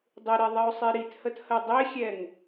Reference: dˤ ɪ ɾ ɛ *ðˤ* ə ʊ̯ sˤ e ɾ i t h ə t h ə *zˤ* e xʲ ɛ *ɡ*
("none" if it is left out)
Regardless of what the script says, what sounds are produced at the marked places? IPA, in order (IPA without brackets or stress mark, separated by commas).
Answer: ðˤ, dˤ, ŋ